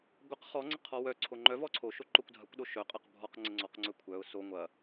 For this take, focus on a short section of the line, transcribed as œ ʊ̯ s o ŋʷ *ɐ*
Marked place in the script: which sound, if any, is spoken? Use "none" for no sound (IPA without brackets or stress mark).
ɐ